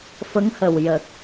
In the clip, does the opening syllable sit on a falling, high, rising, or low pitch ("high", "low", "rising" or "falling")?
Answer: rising